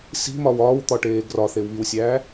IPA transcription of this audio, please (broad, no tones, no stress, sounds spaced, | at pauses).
s i̤ m ɒ w ɒː w t̪ ɒ ʈ eː ɡ r ɒ θ e w β i w sʲ æː